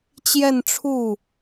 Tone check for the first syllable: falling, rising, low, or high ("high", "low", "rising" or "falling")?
falling